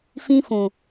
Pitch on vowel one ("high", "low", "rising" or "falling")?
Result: high